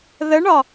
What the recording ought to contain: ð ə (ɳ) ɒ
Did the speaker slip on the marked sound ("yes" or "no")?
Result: no